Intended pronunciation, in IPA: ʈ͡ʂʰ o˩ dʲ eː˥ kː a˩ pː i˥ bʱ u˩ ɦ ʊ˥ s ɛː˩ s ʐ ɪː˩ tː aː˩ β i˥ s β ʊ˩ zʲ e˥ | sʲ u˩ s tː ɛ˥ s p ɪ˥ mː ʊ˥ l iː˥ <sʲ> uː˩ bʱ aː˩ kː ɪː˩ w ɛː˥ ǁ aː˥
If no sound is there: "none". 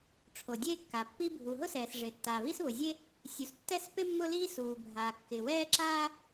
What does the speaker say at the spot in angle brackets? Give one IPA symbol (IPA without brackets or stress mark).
s